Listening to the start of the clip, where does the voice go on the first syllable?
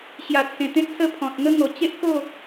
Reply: low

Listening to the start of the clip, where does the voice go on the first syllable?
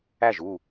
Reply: falling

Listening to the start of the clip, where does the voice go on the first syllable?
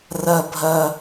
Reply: high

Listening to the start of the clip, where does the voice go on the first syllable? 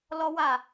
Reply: high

